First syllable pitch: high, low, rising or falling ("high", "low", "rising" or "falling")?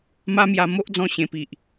high